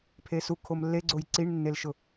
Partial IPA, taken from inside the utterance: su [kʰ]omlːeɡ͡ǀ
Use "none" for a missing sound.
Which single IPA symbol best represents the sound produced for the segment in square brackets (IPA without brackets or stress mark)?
kʰ